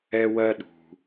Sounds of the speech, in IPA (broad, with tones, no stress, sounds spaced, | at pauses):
ɛ˧ w ɜ˧ ɗ ṳ˩